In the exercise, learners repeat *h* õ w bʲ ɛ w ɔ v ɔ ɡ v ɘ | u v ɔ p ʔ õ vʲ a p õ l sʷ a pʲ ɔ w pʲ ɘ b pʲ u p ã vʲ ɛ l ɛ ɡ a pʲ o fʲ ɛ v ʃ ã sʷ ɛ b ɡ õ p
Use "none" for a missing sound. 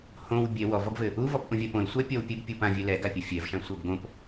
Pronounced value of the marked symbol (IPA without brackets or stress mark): h